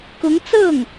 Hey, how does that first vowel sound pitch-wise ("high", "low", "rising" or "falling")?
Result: rising